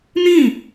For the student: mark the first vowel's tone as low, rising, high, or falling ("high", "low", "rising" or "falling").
falling